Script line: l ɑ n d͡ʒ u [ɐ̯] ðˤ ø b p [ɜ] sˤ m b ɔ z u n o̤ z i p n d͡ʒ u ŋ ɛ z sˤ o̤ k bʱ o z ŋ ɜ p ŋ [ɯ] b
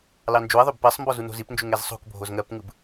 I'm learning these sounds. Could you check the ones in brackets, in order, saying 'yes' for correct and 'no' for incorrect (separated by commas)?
yes, yes, yes